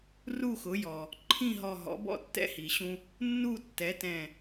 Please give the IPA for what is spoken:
r u˥˨ x ʊ˩˥ j ɔ˩ | ǃʰ ĩ˥˨ ɦ ɔ˧˩ ɦ ɔ̰˩˥ b ɔ̰˥˨ tː ɛ̰˦ h i˩ ɕ ũ˦ | nː u˥˨ tː ɛ˩˥ t ɛ̃˧˩

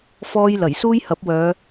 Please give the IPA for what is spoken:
f ɔː˥ j l ɐ˨˩ j s uː˥ j h ɐ˨˥ p̚ w œː˨˧

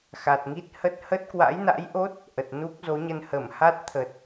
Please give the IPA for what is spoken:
x a˨˩ t̚ ŋ i˦˥ t̚ h ə˦˥ t̚ h ə˦˥ t̚ k w a̰˧˥ j n a̰˧˥ j ʔ o˦˥ t̚ | ʔ ə˨˩ t̚ n u˦˥ k̚ z o˨˦ ɲ ə˧ n h ə˧˩ m h a˦˥ t̚ t̪ʰ ə˨˩ t̚

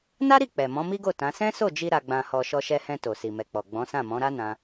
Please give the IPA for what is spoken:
n a˦ ɾ i˦˨ k͡p ɛ˨ m ɔ̃˨˦ m i˦ ɡ o˦˨ t ã˨˦ s ɛ̃˦ s o˦˨ d͡ʒ i˧ ɾ a˧ ɡ͡b ã˧ h ɔ˧ ʃ ɔ˧ ʃ ɛ˧ h ɛ̃˧ t o˨ s i˨ m ɛ˨ k͡p ɔ˨ ɡ͡b ɔ̃˨˦ s ã˦˨ m ɔ̃˨˦ ɾ a˦ n ã˦

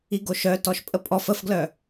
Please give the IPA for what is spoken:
i ɡ o ʃ œ t ɔ ʃ pʼ ə pʼ ɔ f ə f ɡ l œ

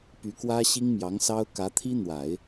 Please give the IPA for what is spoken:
p y˧˥ k w ä˥ ɕ i˥ ŋ m j ɑ˧˥ ŋ s ɑ˥ ʊ̯ k ä˧˥ t̪ʰ i˥ n̪ w a˨˩˦ ɪ̯

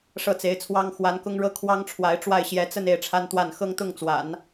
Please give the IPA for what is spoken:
ʂ ɤ˥˩ t͡s e˧˥ ɪ̯ t͡sʰ w ɑ˥ ŋ x w a˧˥ n k ʊ˥ ŋ ɻ ɤ˥ kʰ w ɑ˥ ŋ ʈ͡ʂʰ w a˧˥ ɪ̯ ʈ͡ʂ w a˥˩ ɪ̯ ɕ j ɛ˧˥ t͡s ə˥˧ n e˥˩ ɪ̯ ʈ͡ʂʰ a˥ n t̪ w a˥˩ n x ɤ˥ ŋ t̪ ʊ˥˩ ŋ t͡s w a̰˨˩˦ n

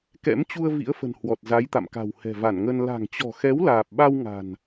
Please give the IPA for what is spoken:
k ɛ̰˧˥ m t͡ɕ u˧ ə̯ v ḭ˧˥ ə̯ f ə̤˨˩ n h w ɔ˨˩ t̚ z a˨˦ j t̪ a̰˧˨ m k a̤˨˩ w h ɛ̤˨˩ v a˧˩ n ŋ ə˧ n l a̤˨˩ ŋ t͡ɕ ɔ̤˨˩ x ɛ˨˦ w l aː˨˩ p̚ ɓ a˧ w ŋ a̤˨˩ n

